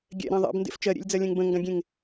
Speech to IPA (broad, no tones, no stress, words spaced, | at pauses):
ɡʲɛ̰ɾɛ̃ ðˤḛbndḛf t͡ʃɜɾʲḛlʲd͡zɜlʲɛ̃ŋ bə̃ŋɡãɡʲẽŋ